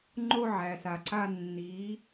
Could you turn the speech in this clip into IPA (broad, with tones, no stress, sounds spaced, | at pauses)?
ŋ͡ǃ o˦ ʕ æ˨ s a˨ ǀ a˦ nː i˨˦